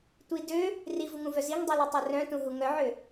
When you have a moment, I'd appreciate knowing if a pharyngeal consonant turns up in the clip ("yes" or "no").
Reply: yes